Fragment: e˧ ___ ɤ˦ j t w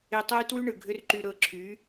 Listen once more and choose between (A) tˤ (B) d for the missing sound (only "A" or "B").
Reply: A